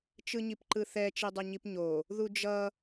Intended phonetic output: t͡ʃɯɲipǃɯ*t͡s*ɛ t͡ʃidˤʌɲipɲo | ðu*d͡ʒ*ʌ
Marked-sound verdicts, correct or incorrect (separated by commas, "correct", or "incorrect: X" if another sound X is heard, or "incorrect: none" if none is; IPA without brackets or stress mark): incorrect: θ, correct